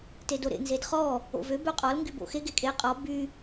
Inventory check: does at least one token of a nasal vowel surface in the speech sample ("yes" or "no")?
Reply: no